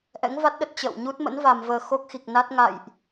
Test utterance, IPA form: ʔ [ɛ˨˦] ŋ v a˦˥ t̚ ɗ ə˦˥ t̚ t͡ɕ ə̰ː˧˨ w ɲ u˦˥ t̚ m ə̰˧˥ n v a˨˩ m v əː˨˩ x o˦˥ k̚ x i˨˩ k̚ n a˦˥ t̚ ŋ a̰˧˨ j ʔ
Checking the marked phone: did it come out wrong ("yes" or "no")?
yes